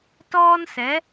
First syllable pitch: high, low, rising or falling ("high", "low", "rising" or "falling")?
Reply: high